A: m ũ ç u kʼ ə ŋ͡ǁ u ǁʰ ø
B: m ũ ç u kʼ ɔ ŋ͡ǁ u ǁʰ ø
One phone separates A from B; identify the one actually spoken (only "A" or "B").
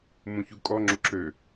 B